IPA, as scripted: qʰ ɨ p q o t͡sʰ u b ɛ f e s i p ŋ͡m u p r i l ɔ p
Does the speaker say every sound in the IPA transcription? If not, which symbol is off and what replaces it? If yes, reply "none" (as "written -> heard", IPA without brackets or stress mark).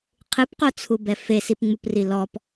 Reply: none